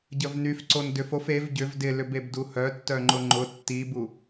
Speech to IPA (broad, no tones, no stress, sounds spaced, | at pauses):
ɟ ə v n y f ǀ o n d ʏ f o f e v ɟ ʏ v d ɪ l ʏ b e b d u h œ tː œ ŋ͡ǃ ʊ ŋ͡ǃ ʊ tː i b u